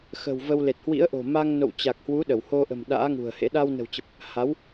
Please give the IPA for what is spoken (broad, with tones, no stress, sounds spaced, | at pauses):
x ə̤˨˩ w v ə˧ w l e˨˩ t̚ h w ḭ˧˥ ə̯ ʔ o̤˨˩ m a˧ ŋ n o̰˧˨ w t͡ɕ a˨˩ k̚ h w u˨˦ ɗ ə˧˩ w h o˧ ʔ ə̤˨˩ m ɗ a̰ː˧˥ ŋ ṳ˨˩ ə̯ h ḛ˧˥ ɗ a˧ w n ə̤˨˩ w t͡ɕ ə˨˩ p̚ | h a˨˦ w